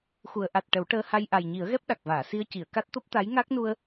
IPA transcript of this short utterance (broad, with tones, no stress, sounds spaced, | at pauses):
x u˨˩˨ ə̯ ʔ a˨˩ t̚ ʈ ə˨˩˦ w ʈ əː˧ h a˧ j ʔ a˨˩ j ɲ i˨˩˦ ə̯ ɣ ɛ˦˥ p̚ ɗ a˨˩ k̚ v aː˨˩˨ s i˧ ə̯ c i˨˩˨ ə̯ k a˦˥ t̚ t̪ o˦˥ p̚ t̪ a˧˥ j ŋ a˦˥ k̚ n u˧ ə̯